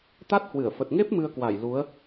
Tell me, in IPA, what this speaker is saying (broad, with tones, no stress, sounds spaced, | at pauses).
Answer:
t̪ a˦˥ t̚ h w ɨ˧˩ ə̯ f ə˨˩ t̚ ŋ e˦˥ p̚ m ɨ˧ ə̯ k w a˧˩ j l u˨˦ ə̯